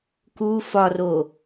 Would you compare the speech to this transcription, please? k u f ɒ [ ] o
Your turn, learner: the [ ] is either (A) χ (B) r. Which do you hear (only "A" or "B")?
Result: B